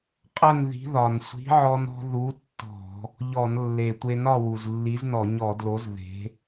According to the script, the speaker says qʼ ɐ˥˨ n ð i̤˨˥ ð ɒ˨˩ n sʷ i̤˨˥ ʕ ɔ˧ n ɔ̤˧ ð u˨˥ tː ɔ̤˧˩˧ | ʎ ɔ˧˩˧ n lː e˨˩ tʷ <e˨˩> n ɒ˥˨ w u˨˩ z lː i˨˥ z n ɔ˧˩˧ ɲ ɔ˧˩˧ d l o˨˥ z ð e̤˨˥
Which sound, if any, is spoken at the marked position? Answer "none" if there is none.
e˧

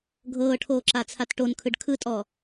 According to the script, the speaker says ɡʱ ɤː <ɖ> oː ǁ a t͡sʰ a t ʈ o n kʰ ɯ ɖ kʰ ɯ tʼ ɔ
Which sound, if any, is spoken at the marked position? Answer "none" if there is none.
ʈʰ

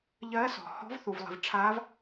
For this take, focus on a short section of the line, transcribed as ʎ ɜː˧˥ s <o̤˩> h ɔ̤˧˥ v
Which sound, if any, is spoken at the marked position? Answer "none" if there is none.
ɔ̤˩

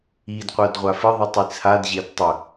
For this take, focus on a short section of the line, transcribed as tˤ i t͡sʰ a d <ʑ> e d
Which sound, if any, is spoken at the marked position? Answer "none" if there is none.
ʑ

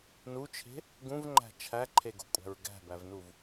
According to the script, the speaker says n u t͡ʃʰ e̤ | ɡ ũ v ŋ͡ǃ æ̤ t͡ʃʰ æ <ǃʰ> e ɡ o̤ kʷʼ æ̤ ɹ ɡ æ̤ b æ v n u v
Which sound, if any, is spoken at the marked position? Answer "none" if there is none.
ǃʰ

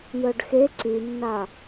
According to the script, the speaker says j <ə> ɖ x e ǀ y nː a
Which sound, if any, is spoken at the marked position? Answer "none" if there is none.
œ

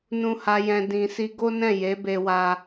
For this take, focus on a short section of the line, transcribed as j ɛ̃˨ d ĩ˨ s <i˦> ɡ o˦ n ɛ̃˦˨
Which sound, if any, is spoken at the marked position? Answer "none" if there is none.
i˧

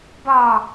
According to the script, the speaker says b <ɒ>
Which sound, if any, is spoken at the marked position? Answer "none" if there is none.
ɒ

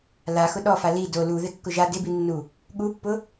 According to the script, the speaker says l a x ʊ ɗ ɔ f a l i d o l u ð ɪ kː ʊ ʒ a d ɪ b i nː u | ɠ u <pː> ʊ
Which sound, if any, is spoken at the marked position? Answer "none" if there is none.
pː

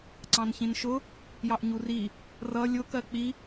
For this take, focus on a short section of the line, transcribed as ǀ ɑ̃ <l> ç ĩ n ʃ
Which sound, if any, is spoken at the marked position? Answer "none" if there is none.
n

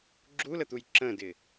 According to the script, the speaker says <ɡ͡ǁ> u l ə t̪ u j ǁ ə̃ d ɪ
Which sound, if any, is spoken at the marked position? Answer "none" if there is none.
ɡ͡ǁ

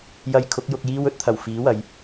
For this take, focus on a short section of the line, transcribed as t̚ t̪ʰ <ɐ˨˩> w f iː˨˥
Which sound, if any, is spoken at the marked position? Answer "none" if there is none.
ɐ˨˩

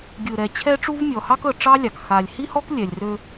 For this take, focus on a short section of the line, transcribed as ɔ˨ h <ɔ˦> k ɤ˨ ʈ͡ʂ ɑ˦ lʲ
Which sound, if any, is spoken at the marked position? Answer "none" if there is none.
ɑ˦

